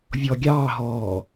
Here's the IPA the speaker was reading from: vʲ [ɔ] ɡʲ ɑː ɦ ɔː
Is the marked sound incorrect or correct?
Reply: correct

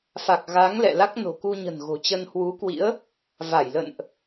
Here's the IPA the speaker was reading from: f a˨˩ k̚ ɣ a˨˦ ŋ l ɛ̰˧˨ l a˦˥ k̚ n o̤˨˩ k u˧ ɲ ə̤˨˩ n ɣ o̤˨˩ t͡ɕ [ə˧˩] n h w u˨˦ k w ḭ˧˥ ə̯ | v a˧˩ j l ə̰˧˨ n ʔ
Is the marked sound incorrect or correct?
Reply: incorrect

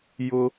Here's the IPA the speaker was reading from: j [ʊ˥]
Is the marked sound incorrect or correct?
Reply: correct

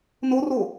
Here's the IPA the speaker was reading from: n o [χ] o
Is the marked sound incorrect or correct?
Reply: incorrect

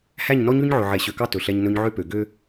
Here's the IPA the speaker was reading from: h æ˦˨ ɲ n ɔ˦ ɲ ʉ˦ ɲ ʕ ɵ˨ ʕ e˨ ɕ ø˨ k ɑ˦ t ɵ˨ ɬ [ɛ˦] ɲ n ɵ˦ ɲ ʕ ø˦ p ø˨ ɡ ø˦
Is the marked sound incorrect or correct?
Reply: correct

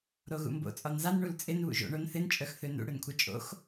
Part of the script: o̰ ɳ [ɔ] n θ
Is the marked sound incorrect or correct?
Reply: incorrect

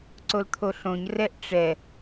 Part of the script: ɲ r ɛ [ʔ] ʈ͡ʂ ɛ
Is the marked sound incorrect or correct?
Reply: correct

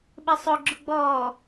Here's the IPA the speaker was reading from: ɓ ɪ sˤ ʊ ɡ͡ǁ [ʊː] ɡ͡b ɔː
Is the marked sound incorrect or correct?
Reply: incorrect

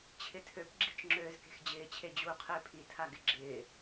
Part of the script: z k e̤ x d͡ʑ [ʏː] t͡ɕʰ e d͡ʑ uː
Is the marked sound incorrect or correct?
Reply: incorrect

